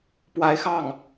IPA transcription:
p w a˧˥ ɪ̯ x ɑ˥˩ ŋ

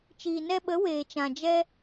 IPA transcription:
t͡ʃ iː˨ n ɛ˧ ɓ ə˨˦ w eː˨ t͡ʃ ã˨ d͡ʒ ɛ˦

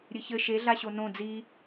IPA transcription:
ɾʲ ɨ ç ɘ ʃ e ɮ a ɕ o n õ d͡z i

